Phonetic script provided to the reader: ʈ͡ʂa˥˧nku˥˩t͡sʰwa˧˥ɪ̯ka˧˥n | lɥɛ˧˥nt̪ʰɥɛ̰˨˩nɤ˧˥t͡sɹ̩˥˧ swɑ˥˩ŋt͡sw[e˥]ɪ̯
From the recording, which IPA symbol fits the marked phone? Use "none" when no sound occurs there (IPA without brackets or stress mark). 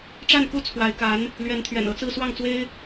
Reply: e˥